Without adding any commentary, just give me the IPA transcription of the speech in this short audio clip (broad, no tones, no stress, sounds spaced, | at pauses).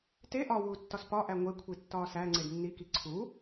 t e ʔ ɒ w uː tː ɒ s p ɒ ʔ æ ŋʷ e kʷʰ i tː ɒː s æ ŋ͡ǀ e d nː i k i ǀʰ u